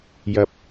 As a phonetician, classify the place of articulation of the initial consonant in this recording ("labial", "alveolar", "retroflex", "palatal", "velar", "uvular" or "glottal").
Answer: palatal